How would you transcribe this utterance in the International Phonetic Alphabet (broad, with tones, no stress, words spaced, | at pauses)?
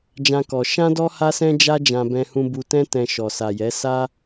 d͡ʒã˦kɔ˧ ʃã˦dɔ˦ ha˦sɛ̃˦d͡ʒa˦ d͡ʒã˧bɛ̃˧hũ˧ bu˧tɛ̃˦ tɛ̃˧ ʃɔ˨sa˨jɛ˨˦ sa˦